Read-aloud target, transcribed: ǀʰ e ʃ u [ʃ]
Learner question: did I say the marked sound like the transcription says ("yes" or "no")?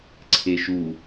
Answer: no